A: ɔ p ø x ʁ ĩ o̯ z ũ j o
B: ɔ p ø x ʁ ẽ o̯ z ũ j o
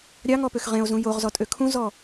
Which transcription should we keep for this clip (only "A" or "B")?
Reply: B